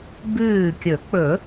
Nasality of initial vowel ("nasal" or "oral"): oral